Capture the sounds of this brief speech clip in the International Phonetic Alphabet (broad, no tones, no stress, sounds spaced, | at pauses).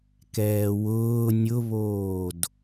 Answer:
k ɛː w ʊː nʲ ʊ β oː d